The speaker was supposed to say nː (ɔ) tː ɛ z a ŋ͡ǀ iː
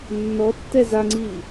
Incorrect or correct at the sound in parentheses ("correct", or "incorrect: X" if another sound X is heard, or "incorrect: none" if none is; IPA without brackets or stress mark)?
correct